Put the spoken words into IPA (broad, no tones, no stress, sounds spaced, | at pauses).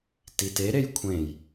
t i t e ɾ e j kʷʰ ẽ j